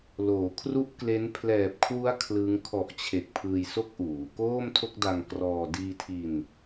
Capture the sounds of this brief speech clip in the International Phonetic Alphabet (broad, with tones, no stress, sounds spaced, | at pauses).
l oː˩˦ kʰ r u˥˩ ʔ k l e˦˥ n pʰ l ɛː˨˩ p̚ kʰ w u˦˥ a̯ kʰ l ɯ˦˥ ŋ kʰ ɔ˨˩ ʔ t͡ɕʰ e˨˩ k̚ pʰ ɯː˧ j s o˥˩ k̚ ʔ uː˩˦ k oː˥˩ m tʰ o˥˩ k̚ d a˧ ŋ k r ɔː˧ d iː˧ tʰ i˧ n